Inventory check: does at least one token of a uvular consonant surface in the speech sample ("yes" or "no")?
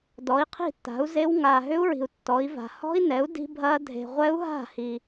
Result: yes